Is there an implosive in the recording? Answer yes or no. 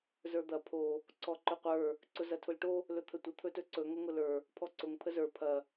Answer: no